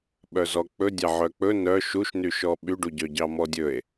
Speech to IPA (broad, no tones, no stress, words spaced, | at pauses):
ɓœzɔk͡pɵ dʲɑʕœk͡pɵ nœ ʃuʃnyʃɔ ɓyɖuɟœɟɑ mɔdʲɵe̯